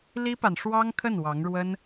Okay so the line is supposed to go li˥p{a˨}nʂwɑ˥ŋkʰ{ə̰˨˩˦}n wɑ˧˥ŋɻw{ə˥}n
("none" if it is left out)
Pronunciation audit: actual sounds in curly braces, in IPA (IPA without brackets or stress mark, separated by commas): a˨, ə˥˩, ə˥